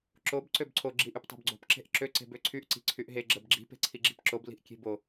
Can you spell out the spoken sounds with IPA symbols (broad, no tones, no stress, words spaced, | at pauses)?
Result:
ǁob ǀøbǀʰo ɡ͡ǁiʔyptˤo̤bɡ͡ǀo̤p ǁe̤ʔǁø ǀe̤bøǀʰyʔ ǀi̤ǀʰyʔɦe ɡ͡ǁɜbɡ͡ǁi̤ pe̤ǀʰiɡ͡ǁi̤pǁob li̤ʔkʲe̤bo